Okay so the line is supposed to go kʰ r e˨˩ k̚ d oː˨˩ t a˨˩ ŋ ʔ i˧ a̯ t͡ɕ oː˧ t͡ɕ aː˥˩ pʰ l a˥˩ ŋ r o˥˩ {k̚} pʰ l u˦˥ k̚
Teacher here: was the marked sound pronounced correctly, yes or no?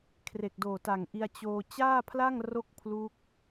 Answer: yes